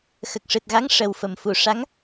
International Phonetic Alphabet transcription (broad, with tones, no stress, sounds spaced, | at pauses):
x ə˨˩ k̚ ʂ ɨ˨˩ t̚ ɣ a˧˥ ŋ ʂ ə˨˩ w f ə˨˩˨ m f u˨˩˨ ʂ a˧˥ ŋ